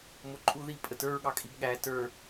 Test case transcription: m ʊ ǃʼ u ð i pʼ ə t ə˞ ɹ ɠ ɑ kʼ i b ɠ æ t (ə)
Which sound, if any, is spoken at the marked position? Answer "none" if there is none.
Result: ə˞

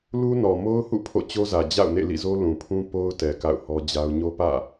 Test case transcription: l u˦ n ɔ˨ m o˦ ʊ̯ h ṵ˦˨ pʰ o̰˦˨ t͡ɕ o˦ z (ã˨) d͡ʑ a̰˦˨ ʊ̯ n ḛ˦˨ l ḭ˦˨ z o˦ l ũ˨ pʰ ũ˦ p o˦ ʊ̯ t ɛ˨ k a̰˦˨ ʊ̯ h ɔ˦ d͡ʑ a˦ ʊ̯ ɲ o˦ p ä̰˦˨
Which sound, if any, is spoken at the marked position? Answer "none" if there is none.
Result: ä˨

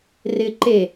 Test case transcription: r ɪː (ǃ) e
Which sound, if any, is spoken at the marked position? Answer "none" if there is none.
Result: ǃ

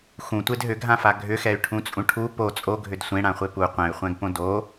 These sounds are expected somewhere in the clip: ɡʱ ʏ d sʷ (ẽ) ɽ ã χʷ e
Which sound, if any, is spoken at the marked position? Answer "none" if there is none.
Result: ẽ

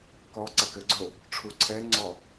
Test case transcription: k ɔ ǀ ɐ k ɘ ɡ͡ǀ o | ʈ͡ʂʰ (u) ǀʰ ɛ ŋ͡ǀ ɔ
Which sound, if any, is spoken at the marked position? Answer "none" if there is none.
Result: u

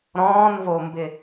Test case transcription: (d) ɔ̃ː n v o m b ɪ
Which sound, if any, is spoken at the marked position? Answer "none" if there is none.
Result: ɾ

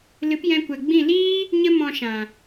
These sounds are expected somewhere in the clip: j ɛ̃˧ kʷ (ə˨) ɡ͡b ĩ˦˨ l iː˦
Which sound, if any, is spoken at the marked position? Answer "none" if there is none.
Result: ɛ˨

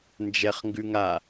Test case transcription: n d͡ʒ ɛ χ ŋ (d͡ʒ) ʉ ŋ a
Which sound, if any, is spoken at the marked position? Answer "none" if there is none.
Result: ɡ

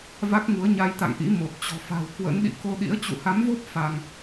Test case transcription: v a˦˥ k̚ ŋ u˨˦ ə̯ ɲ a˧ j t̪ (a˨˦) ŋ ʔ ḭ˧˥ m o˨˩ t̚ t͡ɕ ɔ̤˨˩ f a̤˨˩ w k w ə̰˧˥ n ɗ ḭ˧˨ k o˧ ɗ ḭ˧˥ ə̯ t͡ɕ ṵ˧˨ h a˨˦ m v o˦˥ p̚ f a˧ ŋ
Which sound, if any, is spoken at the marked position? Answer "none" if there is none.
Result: a̰˧˨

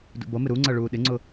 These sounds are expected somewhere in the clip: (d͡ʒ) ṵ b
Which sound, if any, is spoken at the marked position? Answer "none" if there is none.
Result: d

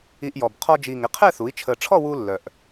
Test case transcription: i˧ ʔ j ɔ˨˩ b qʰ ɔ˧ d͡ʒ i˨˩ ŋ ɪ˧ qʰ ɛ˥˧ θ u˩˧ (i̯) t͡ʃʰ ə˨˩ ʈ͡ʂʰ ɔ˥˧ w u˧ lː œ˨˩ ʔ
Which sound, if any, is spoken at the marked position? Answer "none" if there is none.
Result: i̯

